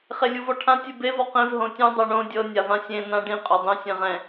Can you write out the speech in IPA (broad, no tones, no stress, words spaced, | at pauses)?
χelʲuvɔʈʰã tʲɯbe vɔqẽv ɦõtʲũ dˤɤɳõ dʲɤ nʲavãsʲẽ nãɖĩ qʼodˤĩ sʲẽʁɛ̃